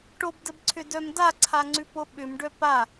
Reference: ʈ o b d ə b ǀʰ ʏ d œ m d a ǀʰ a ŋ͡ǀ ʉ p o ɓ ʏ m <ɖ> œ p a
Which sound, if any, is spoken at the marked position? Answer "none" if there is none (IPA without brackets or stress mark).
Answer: ɖ